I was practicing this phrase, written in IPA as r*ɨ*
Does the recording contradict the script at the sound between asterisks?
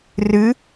no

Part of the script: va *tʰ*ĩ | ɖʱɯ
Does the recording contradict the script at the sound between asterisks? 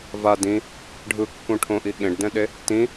yes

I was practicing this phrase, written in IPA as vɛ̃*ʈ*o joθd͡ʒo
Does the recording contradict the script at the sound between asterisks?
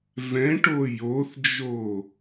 no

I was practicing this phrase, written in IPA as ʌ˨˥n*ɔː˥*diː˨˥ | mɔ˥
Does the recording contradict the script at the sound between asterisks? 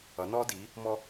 no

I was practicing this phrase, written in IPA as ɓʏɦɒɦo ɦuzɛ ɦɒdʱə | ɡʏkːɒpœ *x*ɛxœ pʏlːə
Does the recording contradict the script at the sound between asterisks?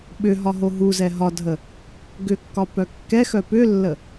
yes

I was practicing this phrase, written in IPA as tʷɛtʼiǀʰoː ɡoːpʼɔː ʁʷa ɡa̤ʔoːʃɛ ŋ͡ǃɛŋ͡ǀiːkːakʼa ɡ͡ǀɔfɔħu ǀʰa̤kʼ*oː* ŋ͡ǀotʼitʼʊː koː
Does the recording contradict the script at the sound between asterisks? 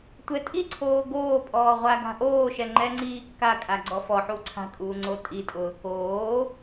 yes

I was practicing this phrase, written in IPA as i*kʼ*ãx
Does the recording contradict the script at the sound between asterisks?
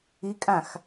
no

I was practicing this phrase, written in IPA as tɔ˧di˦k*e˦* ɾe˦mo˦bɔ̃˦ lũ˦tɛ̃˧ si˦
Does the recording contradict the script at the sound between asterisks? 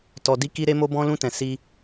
yes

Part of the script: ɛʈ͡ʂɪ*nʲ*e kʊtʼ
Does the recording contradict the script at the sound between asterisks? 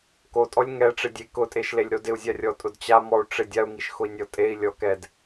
yes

